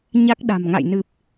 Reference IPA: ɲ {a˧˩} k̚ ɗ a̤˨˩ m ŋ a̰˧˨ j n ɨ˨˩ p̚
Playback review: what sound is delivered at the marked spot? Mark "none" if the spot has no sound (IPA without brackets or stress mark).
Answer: a˦˥